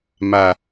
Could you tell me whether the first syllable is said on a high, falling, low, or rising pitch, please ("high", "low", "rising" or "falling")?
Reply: low